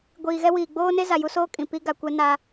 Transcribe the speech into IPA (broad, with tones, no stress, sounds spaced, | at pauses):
ɡʷ iː˨ ɣ ɛ˦ w iː˨ ɡ͡b oː˦ n e˦ z a˨ j u˦ s oː˦ kʼ ĩ˨ p i˦ ɡ a˨ kʷ ɛ˦ n a˦